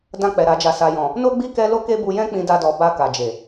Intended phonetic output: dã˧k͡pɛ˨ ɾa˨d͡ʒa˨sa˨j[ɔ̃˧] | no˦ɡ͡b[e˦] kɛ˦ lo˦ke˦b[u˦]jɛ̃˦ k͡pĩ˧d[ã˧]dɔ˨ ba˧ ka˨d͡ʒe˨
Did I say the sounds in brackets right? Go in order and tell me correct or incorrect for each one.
incorrect: ɔ̃˨, incorrect: i˦, incorrect: u˧, incorrect: a˧

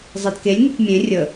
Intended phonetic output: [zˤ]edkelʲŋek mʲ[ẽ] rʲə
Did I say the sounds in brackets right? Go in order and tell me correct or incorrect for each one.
correct, correct

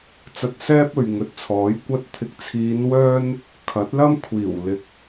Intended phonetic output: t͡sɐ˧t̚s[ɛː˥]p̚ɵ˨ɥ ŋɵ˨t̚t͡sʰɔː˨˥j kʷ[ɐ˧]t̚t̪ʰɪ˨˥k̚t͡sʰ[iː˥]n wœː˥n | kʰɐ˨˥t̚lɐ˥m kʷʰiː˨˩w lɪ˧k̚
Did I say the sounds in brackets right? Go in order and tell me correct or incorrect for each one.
correct, correct, incorrect: iː˨˧

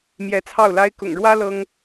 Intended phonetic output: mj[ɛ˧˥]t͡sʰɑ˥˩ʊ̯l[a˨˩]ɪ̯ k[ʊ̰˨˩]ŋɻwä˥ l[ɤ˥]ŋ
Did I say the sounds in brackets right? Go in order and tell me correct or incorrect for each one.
correct, incorrect: a˥, correct, correct

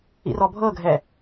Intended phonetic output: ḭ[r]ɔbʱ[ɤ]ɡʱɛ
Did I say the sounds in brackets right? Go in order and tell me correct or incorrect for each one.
correct, correct

